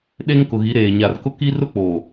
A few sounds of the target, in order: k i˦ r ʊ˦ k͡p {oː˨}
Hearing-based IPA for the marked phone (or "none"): oː˨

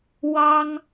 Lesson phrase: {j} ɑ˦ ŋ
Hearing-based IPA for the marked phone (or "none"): w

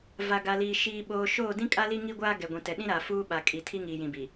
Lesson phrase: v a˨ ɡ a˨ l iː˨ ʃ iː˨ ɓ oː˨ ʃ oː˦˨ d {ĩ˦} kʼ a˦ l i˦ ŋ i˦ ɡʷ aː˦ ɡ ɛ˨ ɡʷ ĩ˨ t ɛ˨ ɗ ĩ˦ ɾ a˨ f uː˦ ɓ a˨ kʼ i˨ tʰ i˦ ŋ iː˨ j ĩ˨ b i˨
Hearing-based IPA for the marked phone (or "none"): ĩ˦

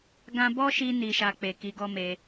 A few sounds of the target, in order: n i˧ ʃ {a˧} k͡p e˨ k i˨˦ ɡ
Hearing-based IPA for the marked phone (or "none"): a˧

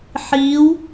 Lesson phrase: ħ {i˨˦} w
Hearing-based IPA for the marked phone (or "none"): i˨˦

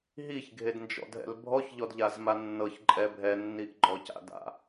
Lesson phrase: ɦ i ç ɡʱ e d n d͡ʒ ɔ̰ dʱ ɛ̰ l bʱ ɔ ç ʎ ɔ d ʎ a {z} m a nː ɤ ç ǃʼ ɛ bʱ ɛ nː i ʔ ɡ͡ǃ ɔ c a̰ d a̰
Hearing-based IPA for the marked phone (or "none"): z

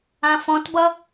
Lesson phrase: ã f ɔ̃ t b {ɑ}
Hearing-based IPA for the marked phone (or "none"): ʌ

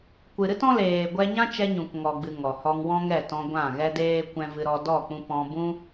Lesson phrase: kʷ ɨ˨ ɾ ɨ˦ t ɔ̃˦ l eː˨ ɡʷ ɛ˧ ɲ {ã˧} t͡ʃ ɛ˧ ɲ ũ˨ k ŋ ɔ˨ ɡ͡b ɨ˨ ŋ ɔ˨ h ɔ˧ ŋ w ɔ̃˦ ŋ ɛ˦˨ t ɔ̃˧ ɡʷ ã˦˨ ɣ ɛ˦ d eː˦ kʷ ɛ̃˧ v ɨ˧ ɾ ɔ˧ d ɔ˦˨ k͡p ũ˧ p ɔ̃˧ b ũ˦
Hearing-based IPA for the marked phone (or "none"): ã˦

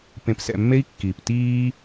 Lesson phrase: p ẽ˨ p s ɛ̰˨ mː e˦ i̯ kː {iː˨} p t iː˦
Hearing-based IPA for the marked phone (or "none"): iː˨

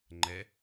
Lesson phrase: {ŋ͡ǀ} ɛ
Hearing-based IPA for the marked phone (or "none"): ŋ͡ǃ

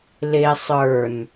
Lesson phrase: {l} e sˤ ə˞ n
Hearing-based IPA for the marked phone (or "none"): l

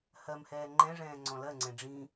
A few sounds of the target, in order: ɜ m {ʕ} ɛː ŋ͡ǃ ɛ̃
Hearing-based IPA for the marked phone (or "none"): h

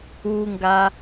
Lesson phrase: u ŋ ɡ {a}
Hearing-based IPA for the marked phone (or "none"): a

